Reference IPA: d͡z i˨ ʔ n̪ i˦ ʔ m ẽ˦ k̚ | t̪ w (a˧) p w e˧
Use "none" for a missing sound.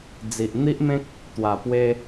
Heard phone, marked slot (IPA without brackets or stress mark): a˨˩